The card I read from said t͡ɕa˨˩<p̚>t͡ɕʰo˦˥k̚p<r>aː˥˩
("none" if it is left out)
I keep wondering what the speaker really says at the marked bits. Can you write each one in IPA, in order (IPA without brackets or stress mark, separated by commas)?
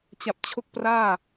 p̚, r